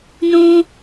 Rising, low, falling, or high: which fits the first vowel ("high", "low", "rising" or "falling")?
low